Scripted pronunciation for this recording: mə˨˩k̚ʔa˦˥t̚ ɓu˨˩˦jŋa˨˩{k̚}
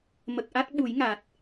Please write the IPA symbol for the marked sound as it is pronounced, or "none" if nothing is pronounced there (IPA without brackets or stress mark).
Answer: t̚